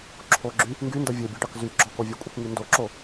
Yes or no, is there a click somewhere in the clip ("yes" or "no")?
yes